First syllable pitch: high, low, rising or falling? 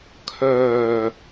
low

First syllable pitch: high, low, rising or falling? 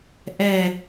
falling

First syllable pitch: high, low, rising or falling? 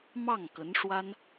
falling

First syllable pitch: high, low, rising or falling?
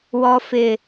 high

